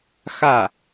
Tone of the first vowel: falling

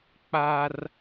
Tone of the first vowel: high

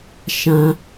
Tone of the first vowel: high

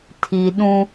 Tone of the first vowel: low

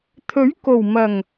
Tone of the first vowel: rising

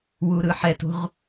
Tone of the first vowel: high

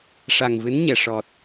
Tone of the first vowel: low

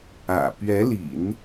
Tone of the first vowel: low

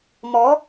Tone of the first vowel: rising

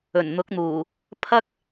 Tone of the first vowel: low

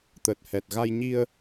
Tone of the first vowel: low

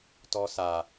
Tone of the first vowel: high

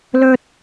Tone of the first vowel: high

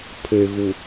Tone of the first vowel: low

